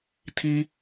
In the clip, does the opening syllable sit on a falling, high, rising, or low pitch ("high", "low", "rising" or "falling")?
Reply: high